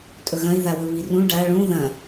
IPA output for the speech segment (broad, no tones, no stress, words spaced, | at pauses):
tʼɵɣɐ̃i̯ ðawɵβirũ ɖa ɭũ ðɐ̃